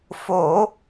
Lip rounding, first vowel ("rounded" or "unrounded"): rounded